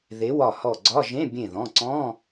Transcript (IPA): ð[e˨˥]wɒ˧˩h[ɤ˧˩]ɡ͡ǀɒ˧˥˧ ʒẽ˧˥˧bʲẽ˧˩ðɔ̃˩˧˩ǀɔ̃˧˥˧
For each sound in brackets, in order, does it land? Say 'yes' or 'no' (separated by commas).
yes, no